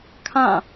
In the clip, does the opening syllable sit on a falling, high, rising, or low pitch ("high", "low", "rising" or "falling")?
falling